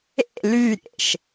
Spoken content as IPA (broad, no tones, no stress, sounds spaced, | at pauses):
ḛ l y ɾʲ ḛ ʃ